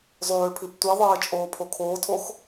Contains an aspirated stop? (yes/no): yes